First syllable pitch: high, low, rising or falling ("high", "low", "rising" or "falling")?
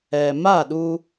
low